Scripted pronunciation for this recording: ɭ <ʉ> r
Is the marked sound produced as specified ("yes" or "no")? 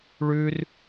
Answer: yes